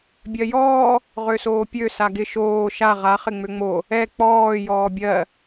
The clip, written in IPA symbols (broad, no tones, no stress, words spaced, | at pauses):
bʲɜjɔː | ʁøsoːpʲø saɡɪ ʃoː ʃa ʁa χɪŋ͡møŋ͡mo | ɛ k͡pɔː jɔːbʲɜ